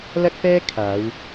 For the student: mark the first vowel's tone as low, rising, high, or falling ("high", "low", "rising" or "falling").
high